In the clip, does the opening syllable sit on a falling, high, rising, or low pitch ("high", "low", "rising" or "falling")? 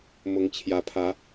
rising